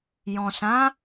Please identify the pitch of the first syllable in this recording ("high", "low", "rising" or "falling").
low